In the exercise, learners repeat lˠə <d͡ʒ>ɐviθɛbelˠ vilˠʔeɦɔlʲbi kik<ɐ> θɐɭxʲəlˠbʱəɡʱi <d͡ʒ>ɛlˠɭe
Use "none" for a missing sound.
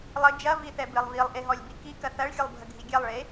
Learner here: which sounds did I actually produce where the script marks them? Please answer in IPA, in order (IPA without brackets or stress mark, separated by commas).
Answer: d͡ʒ, ɐ, ɡʲ